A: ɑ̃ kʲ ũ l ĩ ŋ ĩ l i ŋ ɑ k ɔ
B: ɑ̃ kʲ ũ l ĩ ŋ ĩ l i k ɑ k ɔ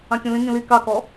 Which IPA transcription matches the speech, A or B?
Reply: B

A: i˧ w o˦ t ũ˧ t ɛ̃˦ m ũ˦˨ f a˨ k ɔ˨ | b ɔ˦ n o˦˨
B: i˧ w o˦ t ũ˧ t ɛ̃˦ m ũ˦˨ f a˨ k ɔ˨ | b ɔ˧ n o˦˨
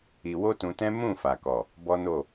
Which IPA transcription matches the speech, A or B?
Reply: A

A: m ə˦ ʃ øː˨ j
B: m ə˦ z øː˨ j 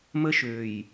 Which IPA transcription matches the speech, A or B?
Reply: A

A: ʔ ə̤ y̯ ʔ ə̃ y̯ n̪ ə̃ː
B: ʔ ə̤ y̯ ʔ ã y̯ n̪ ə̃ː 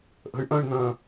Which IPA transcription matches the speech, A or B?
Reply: A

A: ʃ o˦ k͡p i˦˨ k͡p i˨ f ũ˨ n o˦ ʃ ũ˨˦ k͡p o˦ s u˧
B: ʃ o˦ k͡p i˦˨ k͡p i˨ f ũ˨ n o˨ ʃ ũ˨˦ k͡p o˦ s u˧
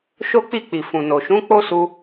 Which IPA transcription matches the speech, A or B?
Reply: B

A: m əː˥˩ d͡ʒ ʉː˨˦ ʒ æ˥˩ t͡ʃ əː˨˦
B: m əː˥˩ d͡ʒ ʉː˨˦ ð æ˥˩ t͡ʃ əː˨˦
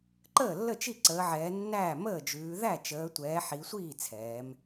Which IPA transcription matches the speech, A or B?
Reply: B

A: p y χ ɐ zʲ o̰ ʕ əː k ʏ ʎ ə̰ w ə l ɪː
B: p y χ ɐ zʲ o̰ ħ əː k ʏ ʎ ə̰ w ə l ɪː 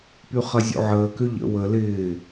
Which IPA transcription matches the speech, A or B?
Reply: A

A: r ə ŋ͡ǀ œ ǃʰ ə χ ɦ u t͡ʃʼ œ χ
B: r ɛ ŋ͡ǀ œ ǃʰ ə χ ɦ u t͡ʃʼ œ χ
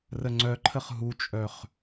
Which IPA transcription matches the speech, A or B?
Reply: A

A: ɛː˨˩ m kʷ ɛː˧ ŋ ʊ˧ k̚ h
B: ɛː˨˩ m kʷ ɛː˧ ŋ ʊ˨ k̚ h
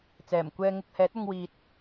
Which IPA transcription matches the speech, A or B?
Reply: A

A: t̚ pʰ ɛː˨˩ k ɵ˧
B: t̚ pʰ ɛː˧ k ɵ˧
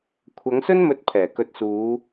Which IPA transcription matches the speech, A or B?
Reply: A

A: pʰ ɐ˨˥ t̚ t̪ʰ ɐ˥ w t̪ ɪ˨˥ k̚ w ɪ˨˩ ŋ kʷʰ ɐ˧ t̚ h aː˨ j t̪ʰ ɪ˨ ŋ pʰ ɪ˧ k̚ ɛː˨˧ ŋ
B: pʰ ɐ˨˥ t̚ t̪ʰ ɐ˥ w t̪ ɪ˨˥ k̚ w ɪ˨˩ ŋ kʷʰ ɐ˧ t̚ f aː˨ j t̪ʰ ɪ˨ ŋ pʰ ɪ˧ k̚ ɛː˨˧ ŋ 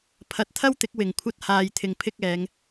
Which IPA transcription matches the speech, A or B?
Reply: A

